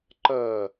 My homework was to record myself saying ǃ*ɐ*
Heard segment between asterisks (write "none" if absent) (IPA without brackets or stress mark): ɐ